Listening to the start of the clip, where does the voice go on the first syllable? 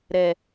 low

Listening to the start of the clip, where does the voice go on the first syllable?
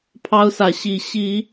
high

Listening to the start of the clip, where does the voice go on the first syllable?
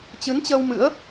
rising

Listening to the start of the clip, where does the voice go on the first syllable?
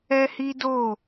high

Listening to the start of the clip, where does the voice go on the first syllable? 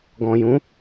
low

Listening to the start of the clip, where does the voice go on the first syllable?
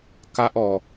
high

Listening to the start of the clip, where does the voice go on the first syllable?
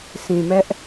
low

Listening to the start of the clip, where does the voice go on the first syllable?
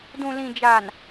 low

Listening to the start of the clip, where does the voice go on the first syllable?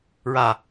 low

